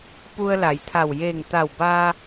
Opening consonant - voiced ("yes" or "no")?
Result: no